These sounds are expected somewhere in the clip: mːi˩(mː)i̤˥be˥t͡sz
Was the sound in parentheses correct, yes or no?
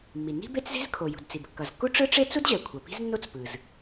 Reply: no